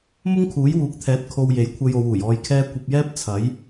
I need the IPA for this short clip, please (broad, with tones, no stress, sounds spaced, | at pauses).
m ʊ˥ ŋ kʰ uː˨˥ j w uː˨˥ k̚ t̪ʰ ɛː˨˥ t̚ kʰ o˧ w j e˨˥ j kʷʰ ɐ˧ j o˨˧ w uː˨˩ j ɔː˧ j kʰ ɛː˥ kʷ ɐ˧ p̚ j ɛː˥ p̚ t͡sʰ ɐ˨˥ j